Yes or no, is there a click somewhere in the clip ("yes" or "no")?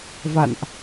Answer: no